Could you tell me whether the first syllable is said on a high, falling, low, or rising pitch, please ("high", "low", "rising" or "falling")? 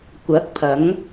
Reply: rising